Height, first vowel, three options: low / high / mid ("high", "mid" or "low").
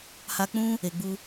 low